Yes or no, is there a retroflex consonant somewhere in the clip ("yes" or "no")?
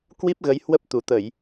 no